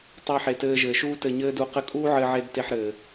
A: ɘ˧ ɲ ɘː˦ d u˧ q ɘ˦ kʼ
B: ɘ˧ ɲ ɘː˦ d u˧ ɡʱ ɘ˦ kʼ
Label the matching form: A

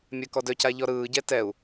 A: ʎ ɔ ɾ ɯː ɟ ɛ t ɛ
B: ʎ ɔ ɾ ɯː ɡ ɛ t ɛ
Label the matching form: A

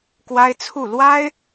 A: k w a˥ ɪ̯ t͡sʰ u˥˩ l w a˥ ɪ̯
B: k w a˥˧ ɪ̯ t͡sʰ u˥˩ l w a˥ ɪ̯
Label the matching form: A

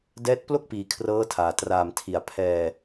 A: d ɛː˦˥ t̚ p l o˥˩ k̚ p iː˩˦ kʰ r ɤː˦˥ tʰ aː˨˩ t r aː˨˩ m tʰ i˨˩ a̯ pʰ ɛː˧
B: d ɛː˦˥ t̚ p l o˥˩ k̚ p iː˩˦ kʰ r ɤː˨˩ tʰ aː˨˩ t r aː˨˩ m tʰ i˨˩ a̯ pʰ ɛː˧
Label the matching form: A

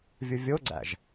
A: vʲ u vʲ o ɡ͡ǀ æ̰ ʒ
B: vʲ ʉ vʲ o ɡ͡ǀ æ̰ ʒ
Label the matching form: A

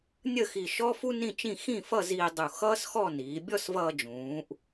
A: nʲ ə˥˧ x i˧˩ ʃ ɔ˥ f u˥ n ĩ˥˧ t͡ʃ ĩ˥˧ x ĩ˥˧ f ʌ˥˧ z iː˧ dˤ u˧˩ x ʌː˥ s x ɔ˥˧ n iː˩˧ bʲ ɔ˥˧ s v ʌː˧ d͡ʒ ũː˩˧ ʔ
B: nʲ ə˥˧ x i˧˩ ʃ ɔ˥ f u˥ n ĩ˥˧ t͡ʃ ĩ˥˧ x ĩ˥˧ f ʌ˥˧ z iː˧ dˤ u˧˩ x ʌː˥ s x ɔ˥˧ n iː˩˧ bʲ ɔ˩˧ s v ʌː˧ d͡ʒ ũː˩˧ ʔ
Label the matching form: A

